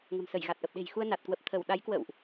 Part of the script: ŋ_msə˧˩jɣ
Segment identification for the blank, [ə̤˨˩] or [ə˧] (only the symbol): ə̤˨˩